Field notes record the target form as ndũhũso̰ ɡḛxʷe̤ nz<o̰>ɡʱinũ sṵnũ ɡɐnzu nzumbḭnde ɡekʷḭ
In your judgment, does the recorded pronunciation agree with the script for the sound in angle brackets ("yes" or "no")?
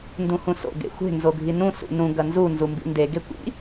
no